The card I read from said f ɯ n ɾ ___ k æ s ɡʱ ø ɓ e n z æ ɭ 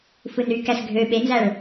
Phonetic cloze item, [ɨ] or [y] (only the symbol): y